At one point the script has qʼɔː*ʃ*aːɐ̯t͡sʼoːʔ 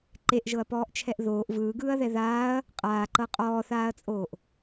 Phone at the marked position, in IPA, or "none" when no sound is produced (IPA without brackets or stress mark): θ